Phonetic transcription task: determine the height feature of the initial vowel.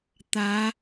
low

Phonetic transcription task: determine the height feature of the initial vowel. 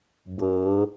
mid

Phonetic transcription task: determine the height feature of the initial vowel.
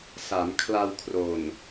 low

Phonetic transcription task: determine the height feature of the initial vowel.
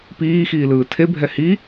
high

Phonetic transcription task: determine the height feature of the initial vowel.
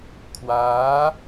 low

